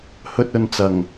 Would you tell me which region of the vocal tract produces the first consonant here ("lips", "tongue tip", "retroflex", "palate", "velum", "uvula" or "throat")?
throat